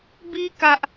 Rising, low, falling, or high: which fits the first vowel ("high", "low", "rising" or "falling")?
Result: high